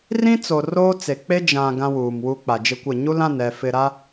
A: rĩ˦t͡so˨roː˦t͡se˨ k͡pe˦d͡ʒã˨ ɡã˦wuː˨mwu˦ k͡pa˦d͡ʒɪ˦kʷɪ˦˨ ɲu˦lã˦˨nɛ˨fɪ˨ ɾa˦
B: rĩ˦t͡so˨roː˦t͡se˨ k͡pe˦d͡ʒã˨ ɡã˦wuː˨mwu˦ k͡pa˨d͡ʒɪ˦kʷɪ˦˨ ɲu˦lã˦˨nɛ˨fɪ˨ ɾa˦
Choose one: B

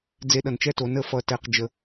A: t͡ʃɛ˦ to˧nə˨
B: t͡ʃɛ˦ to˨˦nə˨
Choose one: B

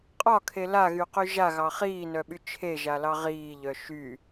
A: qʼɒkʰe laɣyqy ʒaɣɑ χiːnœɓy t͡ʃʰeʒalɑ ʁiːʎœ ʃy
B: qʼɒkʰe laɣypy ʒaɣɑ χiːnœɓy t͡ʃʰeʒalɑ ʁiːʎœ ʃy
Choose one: A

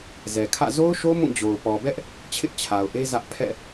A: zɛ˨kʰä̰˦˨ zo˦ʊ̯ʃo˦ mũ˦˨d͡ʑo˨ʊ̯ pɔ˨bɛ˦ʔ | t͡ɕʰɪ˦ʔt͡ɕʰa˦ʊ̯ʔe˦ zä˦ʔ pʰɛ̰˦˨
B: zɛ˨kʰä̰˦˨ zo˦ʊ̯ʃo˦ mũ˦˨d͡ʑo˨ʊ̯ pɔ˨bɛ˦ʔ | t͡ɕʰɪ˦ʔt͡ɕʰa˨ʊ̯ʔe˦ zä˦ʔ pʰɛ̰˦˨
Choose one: B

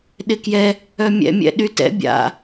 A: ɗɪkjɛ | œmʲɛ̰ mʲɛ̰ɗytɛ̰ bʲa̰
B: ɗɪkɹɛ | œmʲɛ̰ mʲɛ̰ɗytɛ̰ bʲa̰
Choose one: A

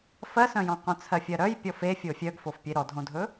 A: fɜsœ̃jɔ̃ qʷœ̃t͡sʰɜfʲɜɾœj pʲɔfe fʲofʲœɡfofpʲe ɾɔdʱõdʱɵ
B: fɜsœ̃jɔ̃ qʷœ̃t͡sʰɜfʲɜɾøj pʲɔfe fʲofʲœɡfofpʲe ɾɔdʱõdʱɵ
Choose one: A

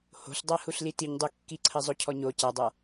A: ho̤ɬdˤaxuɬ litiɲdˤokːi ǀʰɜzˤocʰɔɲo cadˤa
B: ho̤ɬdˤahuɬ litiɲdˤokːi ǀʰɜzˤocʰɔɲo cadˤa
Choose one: B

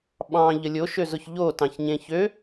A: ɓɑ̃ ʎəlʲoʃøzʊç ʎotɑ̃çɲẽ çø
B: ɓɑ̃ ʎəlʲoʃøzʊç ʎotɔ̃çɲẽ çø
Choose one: A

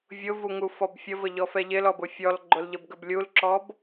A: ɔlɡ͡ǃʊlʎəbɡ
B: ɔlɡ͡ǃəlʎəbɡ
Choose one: A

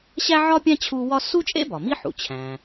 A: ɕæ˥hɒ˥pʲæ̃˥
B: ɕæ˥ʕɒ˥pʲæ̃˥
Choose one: B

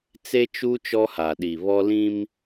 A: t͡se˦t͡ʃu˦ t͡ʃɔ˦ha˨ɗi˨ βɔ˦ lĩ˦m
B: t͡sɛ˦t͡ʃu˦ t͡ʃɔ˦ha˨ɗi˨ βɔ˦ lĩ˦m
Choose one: A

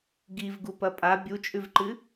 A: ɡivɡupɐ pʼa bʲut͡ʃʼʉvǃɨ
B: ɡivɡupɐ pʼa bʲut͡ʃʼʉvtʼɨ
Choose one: A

